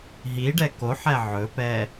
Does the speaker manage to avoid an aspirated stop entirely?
yes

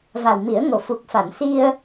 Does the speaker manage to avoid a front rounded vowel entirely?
yes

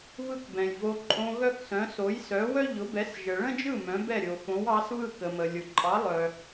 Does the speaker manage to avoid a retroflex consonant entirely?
no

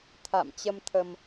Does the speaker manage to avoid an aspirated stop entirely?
no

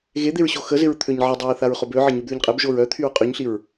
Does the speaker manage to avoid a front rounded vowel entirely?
no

